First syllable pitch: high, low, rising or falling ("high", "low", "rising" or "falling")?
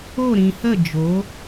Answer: falling